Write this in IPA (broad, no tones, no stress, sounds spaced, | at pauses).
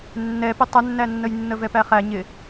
nː ɛ p ɪ tˤ ə nː æ nː ə j nː ə v ɛ p æ χ æ ɲ ɪ